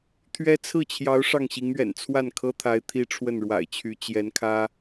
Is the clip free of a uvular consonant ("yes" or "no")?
yes